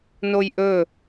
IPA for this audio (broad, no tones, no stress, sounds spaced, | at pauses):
n o j ʔ ɵ